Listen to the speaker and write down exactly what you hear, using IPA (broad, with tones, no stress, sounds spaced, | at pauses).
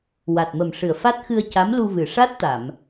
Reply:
w a˨˩ t̚ m ə˨˩ m ʂ ɨ˨˩ ə̯ f a˦˥ t̚ x ɨ˧ ə̯ c a˧˥ m l u˧ v ɨ˨˩ ʂ a˦˥ t̚ t̪ a˨˩˨ m